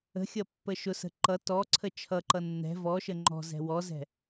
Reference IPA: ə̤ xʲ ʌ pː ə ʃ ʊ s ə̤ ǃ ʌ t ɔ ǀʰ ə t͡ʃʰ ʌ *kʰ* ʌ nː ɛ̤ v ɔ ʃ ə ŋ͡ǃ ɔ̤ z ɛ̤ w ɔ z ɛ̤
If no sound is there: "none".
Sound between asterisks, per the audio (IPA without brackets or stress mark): ǃ